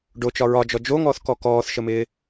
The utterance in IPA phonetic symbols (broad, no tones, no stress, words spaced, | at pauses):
ɖot͡ʃɒ ɹɒd͡ʒɔ d͡ʒoŋɔːθkɔ kɔːθʃəmɪː